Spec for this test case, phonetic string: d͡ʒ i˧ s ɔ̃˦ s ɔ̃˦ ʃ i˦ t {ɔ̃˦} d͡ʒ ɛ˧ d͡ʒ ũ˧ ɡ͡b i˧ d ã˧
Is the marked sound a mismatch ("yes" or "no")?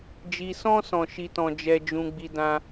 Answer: no